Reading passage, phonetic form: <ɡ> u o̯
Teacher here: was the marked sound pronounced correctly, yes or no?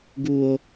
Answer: yes